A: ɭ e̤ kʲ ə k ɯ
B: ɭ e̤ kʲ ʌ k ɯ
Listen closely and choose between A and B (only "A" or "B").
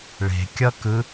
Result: B